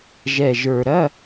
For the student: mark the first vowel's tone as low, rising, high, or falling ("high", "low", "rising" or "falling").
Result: low